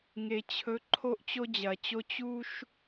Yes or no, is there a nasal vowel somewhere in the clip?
no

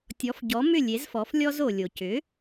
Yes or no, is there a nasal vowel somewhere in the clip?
no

